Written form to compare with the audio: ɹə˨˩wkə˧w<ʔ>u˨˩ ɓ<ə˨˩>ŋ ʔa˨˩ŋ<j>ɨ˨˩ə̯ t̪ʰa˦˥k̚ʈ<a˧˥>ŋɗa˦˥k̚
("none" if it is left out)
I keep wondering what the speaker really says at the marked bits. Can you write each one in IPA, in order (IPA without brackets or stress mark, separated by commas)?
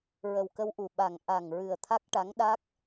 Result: ʔ, a˨˩, ɹ, a˧˥